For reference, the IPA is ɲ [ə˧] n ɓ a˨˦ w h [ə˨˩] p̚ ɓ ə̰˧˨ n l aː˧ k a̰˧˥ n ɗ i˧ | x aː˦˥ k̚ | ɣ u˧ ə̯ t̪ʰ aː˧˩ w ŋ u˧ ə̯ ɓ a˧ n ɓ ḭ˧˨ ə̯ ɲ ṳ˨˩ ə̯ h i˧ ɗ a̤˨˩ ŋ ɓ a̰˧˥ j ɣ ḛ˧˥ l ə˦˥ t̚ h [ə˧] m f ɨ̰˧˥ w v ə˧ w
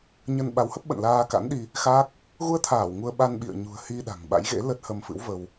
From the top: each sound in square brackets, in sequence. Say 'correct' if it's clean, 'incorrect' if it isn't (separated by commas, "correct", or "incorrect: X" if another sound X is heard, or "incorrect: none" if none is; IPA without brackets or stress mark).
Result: correct, incorrect: ə˦˥, correct